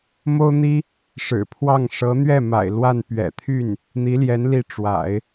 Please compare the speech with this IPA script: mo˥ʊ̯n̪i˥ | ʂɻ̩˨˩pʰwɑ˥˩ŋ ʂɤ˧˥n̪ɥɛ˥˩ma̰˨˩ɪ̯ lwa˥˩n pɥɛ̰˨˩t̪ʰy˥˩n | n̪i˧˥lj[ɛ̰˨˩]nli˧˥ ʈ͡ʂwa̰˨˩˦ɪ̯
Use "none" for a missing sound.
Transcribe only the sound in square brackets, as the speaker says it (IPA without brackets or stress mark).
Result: ɛ˧˥